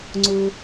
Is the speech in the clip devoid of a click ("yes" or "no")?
no